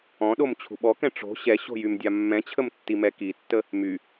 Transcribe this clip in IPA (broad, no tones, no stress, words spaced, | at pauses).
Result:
ɔ̃ɗom t͡ɕʰṳɓɔkɛ̃ ʈ͡ʂo̤ ɕɛɕo̤ jymdʲamːɛ̃t͡ɕʰəm tːimɛkitːə | my